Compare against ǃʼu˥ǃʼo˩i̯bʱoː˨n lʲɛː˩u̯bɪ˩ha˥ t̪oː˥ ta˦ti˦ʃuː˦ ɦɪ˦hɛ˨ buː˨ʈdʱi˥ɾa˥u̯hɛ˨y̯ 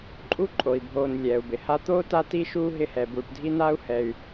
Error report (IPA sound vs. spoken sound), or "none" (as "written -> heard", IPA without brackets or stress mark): ɾ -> n